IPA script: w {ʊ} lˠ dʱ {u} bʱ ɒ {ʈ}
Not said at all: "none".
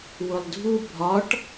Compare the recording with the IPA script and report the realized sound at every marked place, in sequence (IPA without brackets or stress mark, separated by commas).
ʊ, u, ʈ